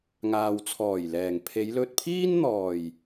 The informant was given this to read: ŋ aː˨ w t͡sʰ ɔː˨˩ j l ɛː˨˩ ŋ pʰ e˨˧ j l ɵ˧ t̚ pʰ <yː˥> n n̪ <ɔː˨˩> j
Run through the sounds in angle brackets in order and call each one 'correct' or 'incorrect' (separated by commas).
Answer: incorrect, correct